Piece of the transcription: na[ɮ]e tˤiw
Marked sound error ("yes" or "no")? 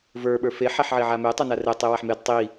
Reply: yes